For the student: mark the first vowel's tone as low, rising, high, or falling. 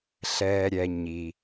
low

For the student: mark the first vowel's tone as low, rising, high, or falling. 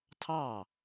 falling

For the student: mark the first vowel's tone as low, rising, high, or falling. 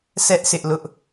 high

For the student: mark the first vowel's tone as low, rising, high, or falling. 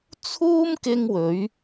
high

